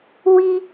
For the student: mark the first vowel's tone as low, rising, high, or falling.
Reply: high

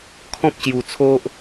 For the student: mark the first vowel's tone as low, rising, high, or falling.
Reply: high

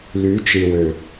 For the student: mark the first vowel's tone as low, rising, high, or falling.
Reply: rising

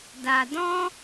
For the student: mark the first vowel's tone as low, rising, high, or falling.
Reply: low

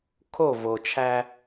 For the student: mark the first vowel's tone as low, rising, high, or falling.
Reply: falling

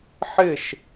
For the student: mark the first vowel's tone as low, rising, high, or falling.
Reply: falling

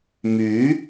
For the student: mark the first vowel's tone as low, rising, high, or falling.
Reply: rising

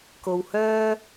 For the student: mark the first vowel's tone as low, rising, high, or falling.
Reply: low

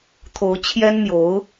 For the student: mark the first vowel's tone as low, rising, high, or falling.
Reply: rising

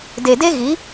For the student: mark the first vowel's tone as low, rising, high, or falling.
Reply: low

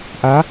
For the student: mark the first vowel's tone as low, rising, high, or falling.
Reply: rising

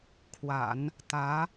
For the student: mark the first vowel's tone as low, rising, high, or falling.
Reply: low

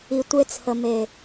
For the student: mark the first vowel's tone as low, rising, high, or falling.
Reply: low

